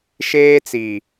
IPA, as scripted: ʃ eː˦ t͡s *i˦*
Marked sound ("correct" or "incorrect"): incorrect